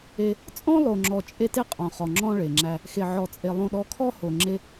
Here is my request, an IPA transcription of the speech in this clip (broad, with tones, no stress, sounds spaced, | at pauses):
e˦ | t͡sʼ ɔ̃˦ lˠ o˨ ŋ͡ǁ ɔ˨ t͡ʃʼ e˦ t e˦ qʼ ɔ̃˨ χ ɔ˨ ŋ͡ǁ ɔ̃˦ ɭ e˨ ŋ͡ǁ æ˦ | x e˨ ʕ ɔ˨ t͡sʼ e˨ lˠ õ˦ ɗ ɔ˦ kʰ ɔ˦ h o˨ ŋ͡ǁ e˦